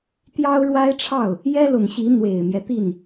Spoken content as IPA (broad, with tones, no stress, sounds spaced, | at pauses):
t̪ j ɑ˥ ʊ̯ ɻ w a˥ ɪ̯ ʈ͡ʂʰ ɑ˥˩ ʊ̯ | j ɛ˥ l ʊ˨˩ ŋ ɕ i˧˥ n̪ w e˨˩ ɪ̯ m j ɛ˦ t̪ i˥˩ n